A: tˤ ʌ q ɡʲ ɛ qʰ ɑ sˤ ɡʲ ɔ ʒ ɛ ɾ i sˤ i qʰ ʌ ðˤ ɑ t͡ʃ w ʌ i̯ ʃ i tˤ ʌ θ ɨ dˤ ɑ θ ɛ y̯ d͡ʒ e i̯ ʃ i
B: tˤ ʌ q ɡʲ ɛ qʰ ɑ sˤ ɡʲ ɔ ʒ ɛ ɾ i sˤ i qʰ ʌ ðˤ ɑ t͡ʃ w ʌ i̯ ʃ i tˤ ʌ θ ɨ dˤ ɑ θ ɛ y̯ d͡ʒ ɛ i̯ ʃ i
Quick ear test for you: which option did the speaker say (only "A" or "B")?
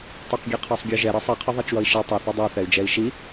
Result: B